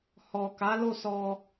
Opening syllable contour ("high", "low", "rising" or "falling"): low